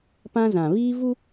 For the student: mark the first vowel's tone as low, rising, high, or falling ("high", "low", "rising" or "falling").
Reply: high